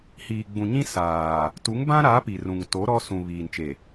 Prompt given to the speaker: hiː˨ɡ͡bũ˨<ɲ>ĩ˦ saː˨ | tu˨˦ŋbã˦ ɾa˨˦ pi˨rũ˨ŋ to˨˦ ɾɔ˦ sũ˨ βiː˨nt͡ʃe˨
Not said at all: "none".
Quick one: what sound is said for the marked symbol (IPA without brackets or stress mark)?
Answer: ɲ